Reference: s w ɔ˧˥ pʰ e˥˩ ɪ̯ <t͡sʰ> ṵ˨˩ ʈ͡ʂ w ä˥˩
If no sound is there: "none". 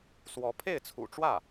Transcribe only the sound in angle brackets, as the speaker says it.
t͡sʰ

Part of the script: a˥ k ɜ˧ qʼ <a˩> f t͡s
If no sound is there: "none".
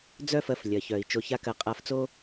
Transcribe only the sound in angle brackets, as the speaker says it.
a˧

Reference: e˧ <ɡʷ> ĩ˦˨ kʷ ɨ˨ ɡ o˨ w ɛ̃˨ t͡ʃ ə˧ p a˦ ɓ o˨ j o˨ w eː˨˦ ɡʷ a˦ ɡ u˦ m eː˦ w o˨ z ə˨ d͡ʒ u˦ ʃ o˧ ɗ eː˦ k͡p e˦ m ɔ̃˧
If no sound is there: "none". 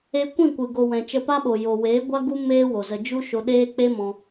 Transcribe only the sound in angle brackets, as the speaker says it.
kʷ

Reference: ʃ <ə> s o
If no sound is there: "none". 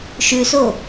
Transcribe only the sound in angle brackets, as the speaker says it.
ʉ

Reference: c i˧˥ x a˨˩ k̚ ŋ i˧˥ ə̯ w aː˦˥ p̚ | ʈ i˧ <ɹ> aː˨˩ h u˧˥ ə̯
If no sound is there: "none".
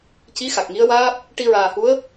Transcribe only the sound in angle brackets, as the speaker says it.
ɹ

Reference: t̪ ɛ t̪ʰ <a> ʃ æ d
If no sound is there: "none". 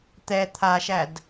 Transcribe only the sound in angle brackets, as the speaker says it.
a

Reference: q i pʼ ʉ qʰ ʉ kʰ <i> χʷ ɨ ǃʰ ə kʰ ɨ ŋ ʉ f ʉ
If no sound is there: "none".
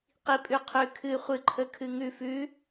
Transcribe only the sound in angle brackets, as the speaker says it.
ɨ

